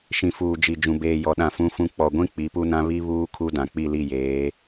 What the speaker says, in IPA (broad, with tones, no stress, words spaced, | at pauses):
ʃĩ˨fuː˨ d͡ʒi˨ d͡ʒũ˨ beː˨ jɔ˨ɗã˨ fũ˦fũ˦ k͡pɔ˨ɡʷĩ˦ k͡pi˨˦pu˦nã˦ βi˦ βuː˦kʰu˦ dã˨k͡pi˦˨li˦˨jeː˨˦